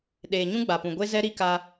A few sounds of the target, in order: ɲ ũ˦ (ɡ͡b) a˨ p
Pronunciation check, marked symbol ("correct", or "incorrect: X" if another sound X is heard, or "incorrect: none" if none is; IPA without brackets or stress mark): correct